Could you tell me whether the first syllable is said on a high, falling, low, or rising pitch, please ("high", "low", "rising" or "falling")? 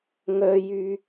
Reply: high